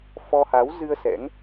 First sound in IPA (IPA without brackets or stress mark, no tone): f